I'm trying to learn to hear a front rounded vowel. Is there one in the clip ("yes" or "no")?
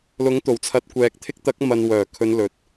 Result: yes